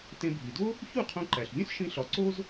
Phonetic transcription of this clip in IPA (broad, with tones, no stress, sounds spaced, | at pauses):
t ẽ˧ bʱ i˩ d o˥ | ç u˥˩ qʰ õ˧ ǃ æ˩ ɬ vʲ ũ˥ s ʃ ĩ˧ ɬ ɒ˩˥ ǀ o˥ z